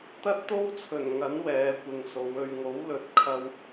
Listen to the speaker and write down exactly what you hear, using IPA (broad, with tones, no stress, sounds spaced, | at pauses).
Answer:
t̪ ɐ˥ t̚ t̪ o˥ w t͡sʰ ɵ˨˩ n ŋ ɐ˨˥ n w ɛː˨˧ kʷ ɪ˨ ŋ s o˨˧ w ɵ˨ ɥ ŋ o˨˥ w l ɵ˨ t̚ kʰ ɐ˧ w